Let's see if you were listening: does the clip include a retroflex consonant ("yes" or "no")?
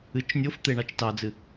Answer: yes